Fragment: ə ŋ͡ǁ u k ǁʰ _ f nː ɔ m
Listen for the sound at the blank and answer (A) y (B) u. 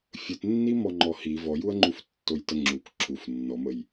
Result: B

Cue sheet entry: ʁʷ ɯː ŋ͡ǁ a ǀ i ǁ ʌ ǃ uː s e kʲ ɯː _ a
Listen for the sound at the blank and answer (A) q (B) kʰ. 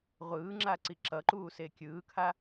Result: B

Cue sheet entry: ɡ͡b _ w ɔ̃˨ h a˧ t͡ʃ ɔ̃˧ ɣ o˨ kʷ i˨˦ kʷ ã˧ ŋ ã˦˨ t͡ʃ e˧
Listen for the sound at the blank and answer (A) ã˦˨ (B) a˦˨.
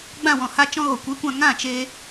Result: A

